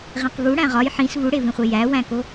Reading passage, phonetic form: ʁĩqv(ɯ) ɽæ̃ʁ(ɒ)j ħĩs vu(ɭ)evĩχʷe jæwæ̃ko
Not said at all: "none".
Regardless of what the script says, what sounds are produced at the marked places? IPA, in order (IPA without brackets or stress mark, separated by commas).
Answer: u, ɒ, ɽ